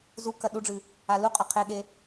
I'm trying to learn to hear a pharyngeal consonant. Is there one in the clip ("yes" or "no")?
no